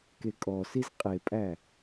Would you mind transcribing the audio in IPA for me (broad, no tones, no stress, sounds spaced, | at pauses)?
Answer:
k e kʼ ɔ s i z qʼ e pʼ æ